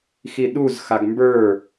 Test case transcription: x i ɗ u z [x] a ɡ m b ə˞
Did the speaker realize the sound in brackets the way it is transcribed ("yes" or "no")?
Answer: yes